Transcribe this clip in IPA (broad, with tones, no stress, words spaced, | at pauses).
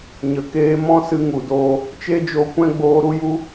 ɲə˨keː˧ mɔ̃˦sɨ˧ ŋu˨doː˧ | t͡ʃe˦d͡ʒo˧kʷɛ̃˦ ɡ͡boː˧ɾu˦ju˦